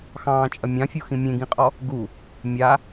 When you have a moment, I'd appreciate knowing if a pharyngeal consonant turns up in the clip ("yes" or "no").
no